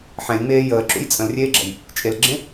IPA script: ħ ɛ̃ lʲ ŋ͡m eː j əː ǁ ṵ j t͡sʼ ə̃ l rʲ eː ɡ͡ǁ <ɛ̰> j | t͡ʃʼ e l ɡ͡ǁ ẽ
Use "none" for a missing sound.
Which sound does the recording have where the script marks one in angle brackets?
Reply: ɛ̰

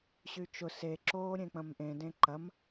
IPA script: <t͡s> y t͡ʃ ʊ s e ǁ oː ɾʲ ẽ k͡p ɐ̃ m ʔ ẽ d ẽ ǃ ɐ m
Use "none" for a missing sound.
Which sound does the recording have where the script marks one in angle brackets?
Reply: ɕ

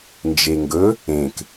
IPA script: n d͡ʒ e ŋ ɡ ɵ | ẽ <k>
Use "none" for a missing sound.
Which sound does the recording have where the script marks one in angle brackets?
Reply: k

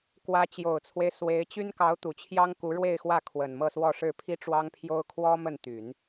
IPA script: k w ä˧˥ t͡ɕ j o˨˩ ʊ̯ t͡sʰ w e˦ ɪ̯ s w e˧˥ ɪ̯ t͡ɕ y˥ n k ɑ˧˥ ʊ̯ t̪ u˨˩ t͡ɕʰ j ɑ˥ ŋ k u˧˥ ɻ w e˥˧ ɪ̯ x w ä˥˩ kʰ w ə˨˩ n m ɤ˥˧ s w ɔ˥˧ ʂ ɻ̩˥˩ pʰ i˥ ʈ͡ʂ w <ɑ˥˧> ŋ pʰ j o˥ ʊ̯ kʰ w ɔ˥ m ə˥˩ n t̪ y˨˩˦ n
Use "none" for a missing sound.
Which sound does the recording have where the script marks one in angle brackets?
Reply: ɑ˥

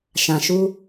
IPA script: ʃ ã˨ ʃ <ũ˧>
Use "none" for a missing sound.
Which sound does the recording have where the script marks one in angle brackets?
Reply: u˧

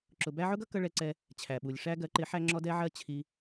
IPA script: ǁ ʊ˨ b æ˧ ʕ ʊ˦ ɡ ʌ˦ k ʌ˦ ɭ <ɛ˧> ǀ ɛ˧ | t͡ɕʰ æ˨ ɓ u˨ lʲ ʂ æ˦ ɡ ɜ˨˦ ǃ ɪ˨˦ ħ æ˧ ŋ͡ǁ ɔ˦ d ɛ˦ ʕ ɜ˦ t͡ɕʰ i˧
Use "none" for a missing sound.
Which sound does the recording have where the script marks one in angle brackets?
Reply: ɛ˧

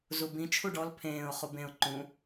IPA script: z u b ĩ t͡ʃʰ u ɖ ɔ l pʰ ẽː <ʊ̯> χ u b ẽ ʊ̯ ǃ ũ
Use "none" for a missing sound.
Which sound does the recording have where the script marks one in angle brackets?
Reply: ʊ̯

